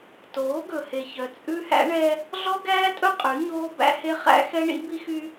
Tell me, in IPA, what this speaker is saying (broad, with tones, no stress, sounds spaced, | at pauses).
t oː˨˦ ɡ ɵ˨ h e˨ ç œ˨ t͡sʼ ʉ˦ h æ̰˦ ɳ ɛ˦ | ɮ ɔ˦ ɡ æː˦ tʼ ɵ˦ qʼ ʉ˨˦ ɲ oː˦ b æ̰˦ h e˦ χ æ̰˦ x ɛ˦ ɳ ḭ˦ b i˦ x y˦